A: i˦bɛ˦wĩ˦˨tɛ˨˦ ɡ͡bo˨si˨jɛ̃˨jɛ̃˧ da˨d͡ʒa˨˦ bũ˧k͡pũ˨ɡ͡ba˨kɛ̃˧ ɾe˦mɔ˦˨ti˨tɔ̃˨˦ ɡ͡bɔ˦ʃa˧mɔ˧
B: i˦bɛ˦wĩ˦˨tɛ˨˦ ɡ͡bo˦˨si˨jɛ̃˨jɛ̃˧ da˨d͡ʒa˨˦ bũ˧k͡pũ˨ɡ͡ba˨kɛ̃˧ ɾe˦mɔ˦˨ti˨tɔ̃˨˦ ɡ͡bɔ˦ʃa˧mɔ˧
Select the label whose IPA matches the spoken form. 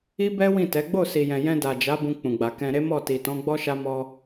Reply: B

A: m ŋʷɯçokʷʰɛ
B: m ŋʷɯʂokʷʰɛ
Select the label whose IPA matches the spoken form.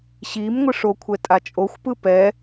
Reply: B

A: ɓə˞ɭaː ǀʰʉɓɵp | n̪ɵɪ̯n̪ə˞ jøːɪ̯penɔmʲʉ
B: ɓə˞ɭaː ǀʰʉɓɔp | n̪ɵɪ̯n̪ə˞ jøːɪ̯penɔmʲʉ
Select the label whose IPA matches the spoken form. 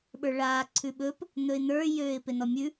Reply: A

